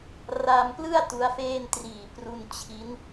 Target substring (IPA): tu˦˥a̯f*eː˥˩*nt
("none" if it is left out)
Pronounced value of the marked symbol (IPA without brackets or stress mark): eː˥˩